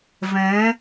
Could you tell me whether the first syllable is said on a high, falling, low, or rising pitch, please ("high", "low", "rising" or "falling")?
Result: rising